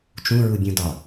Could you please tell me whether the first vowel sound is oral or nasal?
nasal